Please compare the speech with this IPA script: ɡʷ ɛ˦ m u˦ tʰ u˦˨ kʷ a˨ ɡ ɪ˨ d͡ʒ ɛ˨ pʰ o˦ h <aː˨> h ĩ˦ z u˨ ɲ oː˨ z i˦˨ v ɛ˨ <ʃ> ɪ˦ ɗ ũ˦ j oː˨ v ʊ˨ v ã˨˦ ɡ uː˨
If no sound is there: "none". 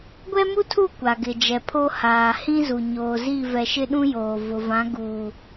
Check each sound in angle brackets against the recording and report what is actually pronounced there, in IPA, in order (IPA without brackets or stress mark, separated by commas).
aː˨, ʃ